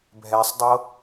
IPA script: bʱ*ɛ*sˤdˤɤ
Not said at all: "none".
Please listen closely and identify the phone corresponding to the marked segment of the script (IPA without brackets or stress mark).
ɛ